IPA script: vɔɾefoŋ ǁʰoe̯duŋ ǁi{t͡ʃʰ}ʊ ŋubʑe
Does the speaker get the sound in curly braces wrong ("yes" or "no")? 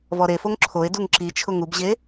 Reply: no